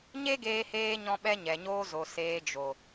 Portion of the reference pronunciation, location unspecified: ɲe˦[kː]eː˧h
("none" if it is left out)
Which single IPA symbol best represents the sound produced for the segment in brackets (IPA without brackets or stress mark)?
ɡ